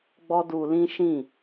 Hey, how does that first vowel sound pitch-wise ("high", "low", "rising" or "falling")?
high